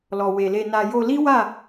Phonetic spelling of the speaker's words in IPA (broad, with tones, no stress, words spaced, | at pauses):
lɔ˨we˨le˧na˧ jo˧ li˦wa˦˨